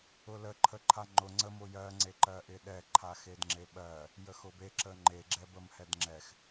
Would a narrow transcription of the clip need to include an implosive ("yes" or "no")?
yes